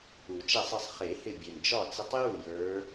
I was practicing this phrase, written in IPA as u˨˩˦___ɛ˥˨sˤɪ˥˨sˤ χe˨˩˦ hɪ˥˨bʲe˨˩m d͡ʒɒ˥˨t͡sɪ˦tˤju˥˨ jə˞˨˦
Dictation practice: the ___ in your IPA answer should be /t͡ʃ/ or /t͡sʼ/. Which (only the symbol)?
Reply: t͡ʃ